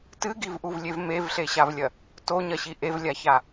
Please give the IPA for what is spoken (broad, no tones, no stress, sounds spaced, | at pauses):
t ɨ ɡ i v ʔ u v lʲ e v m e v ɬ e ɕ a v lʲ ɐ | t o ɲ ɐ ɕ i ʔ e v lʲ a ç a